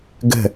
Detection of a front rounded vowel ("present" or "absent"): absent